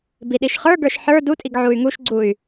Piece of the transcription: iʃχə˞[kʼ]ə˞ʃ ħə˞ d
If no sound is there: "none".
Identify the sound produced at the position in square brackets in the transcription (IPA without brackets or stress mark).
ɡ